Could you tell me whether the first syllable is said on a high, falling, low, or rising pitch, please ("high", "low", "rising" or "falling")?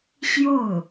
falling